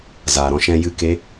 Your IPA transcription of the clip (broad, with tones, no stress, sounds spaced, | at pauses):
z aː˨ ɾ ɔ̃˧ ʃ ɛ̃˧ j ɨ˦˨ k e˦